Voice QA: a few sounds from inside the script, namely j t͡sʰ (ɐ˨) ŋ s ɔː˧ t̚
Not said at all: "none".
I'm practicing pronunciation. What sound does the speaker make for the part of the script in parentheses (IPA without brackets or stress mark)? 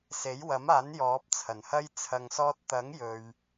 ɐ˨